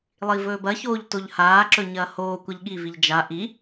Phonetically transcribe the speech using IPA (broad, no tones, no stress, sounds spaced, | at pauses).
lˠ i v ɵː b ɐ ç oː ʎ t o ʎ h aː ǁ ɵ ɲ ɐː h oː kʷ ɐ ʎ ɠ i v i ʎ d͡ʒ a ʔ i